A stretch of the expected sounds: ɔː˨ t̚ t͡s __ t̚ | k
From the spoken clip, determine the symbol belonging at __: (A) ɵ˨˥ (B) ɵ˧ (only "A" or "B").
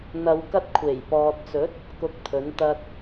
A